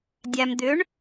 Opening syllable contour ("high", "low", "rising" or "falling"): low